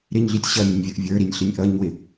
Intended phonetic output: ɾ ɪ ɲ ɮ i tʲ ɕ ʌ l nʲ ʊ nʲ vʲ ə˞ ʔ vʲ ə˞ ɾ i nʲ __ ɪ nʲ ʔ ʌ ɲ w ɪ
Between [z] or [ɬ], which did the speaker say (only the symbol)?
ɬ